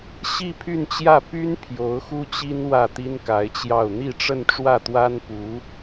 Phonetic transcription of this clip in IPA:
ɕ i˥˧ pʰ y˥˧ n t͡ɕ j ä˥˩ p y˥ n pʰ j o˧˥ ʊ̯ x u˥ t͡ɕ i˥ n w ä˥˩ t̪ i˥ n k a˧˥ ɪ̯ t͡ɕ j ɑ˥˧ ʊ̯ n̪ i˥˧ ʈ͡ʂ ə˥˧ n ʈ͡ʂ w ä˥˩ t̪ w a˥ n p u˧˥

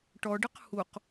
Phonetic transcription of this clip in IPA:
ʈ ɔ ɖ ə q h u q

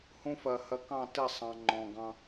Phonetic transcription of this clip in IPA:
h ũ˦ f ɜ˨ h ɜ˨ k ɑ̃˦˨ t ɪ˦˨ sˤ ɑ̃˨ ŋ͡ǃ ɔ̃˨ ɡ ɑ̃˦

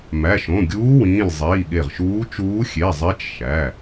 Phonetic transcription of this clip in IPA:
m æ˩˧˩ ʃ õ˩˧˩ ɡʲ uː˧˥ w ĩː˩˧˩ lʲ zˤ iː˩˧˩ ɠ e˧˩ ʁ ʃ uː˧˥ t͡ʃ uː˧˥ xʲ e˩˧˩ zˤ e˧˥ t͡ʃ ʃ æ˩˧˩

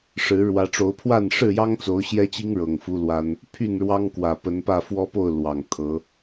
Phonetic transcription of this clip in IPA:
ʂ ɻ̩˨˦ ɻ w ä˨˦ ʈ͡ʂ o˨˦ ʊ̯ pʰ w a˥˨ n ʂ ɻ̩˥˨ j ɑ˦ ŋ t͡s o˨˦ ʊ̯ ɕ j ɛ˦ t͡ɕ i˦ ŋ ɻ ɤ˨˩ ŋ f u˦ l w a˦ n | pʰ y˥˨ n ɻ w ɑ˦ ŋ k w ä˨˩ p ə˨˦ n p ä˥˨ f w ɔ˦ p o˥˨ ʊ̯ l w ɑ˨˩ ŋ t̪ʰ ɤ˨˦

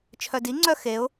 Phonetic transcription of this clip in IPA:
t͡ʃʰ œ d i ŋ͡ǀ œ x e ʊ̯

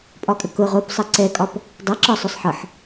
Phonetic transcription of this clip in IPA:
pʼ ɒ kʼ ə k ʊ ʁ o p sˤ ə ǀ ɛ kʼ ɒ p | dˤ a ǁ ɒ sˤ ʊ sˤ ħ ɤ ħ

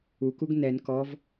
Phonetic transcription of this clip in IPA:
u k u ɡ n ɛ n k ɔ v

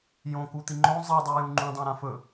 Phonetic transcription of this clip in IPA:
j õ k u t̪ i ŋ͡ǃ õ zˤ i dˤ ʉ j ũ ŋ͡ǃ ũ dˤ ã ɾ ã f ɵ

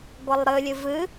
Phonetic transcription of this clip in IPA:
ɡʷ ʌ lˠ ɾ ɨ lʲ ɨ v ɨ

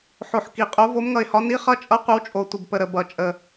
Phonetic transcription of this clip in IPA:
ħ o˨˩ ħ k i˨˩ qʼ o˨˦ v o˨˦ m ŋ ʌ˨˩ ɪ̯ h ɒ˨˦ n i˨˦ χ ʌ˨˦ t͡ʃʼ ʌ˨˦ qʷ ə˨˦ w t͡ʃʼ o˨˩ tʷ ə˨˩ b p ə˨˩ ɾ ə˨˩ b ʌ˨˩ t͡ʃʼ ə˨˩

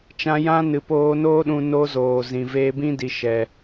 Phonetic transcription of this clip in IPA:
t͡ʃ ã˧ j ã˦ n ɨ˨ p oː˧ n oː˦ ɗ ũ˧ n o˦ z oː˨ z ĩ˨ v eː˧ b ĩ˦ d i˨ ʃ ɛ˨

